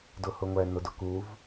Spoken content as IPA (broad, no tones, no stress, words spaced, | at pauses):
dʊhʊŋʷɛ nʊdʊkuv